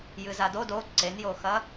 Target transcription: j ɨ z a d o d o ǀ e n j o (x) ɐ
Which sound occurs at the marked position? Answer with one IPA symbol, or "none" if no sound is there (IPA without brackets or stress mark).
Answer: x